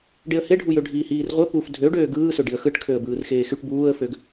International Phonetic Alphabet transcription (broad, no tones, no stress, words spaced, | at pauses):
ɖeə̯heɖʱujø ɖʱiːhiːrʁʷe puf dʱø ɖøːɡɯːsø ɖiə̯xɯʈkʰøə̯ bɯːrxeːxyʈ buːə̯føɡ